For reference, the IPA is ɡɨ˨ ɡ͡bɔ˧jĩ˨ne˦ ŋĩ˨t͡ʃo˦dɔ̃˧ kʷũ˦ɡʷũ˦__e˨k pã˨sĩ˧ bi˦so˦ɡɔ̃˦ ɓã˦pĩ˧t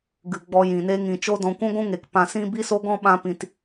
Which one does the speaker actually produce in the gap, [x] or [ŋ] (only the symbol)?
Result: ŋ